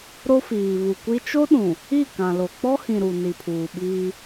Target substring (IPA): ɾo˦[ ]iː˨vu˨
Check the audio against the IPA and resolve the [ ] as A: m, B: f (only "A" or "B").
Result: B